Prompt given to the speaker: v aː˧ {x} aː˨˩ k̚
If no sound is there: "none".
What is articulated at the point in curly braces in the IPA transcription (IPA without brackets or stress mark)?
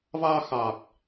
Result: x